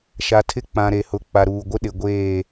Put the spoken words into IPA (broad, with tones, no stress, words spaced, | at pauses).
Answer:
ʃa˨ tʰɪ˦ k͡pã˨ɾe˨hʊ˨ k͡pa˨ɾuː˨ɡʷɪ˦ ɗɪ˨ ɡʷeː˦˨